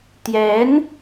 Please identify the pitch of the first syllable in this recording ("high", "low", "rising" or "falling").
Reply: rising